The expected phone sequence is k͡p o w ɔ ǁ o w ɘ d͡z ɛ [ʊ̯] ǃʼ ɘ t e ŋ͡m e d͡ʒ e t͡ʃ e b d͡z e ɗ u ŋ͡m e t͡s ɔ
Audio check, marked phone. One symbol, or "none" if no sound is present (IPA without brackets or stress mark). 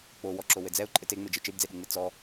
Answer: ʊ̯